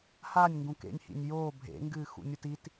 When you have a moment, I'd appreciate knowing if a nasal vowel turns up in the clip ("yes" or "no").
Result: yes